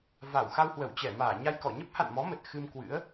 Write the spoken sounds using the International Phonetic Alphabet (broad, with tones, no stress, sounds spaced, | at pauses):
v a˧˩ w x a˧ w h w ə˧˩ w t͡ɕ ɛ˧˩ m aː˧˩ ɲ a˧ j k ɔ˧˩ ɲ ə˦˥ p̚ h a̰˧˨ n m ɔ˨˦ m ə˨˩ t̚ x ɨ˧ m k w ɨ̰˧˥ ə̯